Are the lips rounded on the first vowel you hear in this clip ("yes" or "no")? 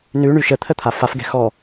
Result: yes